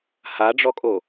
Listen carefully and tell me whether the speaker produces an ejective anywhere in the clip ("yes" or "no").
yes